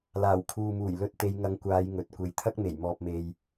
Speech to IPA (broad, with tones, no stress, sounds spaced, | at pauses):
l aː˨˩ w kʰ uː˨ m uː˨˩ j l ɵ˧ t̚ t̪ e˨˧ j ŋ ɐ˧ ŋ kʷ aː˨˧ j ŋ ɵ˨ t̚ kʷ e˨ j t̪ʰ ɐ˥ k̚ m e˨˩ j m ɔː˧ p̚ m e˧ j